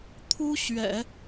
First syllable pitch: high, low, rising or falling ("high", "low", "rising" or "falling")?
high